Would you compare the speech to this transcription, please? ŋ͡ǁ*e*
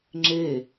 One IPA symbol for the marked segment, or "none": e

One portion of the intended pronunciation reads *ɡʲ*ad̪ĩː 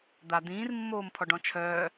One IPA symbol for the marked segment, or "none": d̪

